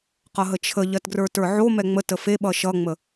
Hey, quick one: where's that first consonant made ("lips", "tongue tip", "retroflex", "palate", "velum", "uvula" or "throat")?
uvula